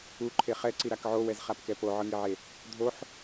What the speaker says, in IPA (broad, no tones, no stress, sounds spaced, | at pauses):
u ǃʰ e χ ɛ ǀ i ɾ a k ʕ o w ɛ z χ a p k ɛ p o ʕ ɯ ŋ i ʕ e | dʱ o ħ